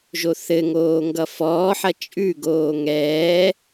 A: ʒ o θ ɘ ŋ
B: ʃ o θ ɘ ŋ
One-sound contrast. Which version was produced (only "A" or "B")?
A